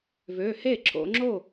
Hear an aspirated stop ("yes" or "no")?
no